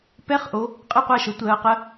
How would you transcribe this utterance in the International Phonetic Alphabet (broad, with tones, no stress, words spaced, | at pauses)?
pɛ˧˥˧χʔo˨˦ | qʼɛ˥˩qʷa˥˩ʃɤ˨˦ tʷɜː˨˦qə˧˥˧